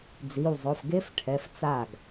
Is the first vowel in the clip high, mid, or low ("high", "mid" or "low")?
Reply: high